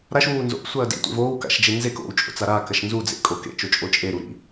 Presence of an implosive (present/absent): absent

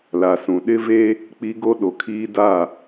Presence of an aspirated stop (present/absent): present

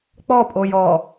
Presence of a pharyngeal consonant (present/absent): absent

